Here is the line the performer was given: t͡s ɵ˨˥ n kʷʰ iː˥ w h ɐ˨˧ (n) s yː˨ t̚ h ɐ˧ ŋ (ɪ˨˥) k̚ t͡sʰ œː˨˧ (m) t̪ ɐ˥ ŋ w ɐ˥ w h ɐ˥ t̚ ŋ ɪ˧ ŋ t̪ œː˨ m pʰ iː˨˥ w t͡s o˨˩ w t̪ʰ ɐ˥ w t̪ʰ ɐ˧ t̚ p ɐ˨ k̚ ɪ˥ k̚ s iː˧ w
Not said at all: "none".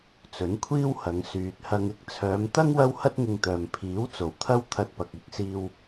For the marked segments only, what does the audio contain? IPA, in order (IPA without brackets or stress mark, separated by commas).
ŋ, ɪ˥, m